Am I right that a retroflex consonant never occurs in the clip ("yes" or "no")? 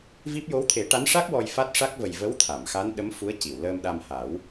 no